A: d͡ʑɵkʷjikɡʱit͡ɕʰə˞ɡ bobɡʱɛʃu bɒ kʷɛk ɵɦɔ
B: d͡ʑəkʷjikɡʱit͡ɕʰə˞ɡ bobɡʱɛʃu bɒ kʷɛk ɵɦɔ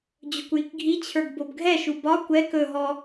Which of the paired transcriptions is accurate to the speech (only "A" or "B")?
A